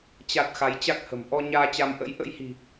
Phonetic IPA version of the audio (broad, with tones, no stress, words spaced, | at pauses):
t͡ɕa˨˩t̚ xa˨˦jt͡ɕa˦˥k̚hə̤˨˩m ʔɔ˧ɲaː˧ t͡ɕa˧m ʔə̰˧˥j ʔə̰˧˥jhi̤˨˩